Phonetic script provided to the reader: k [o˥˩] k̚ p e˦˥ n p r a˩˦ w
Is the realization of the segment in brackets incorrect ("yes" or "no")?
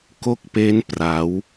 no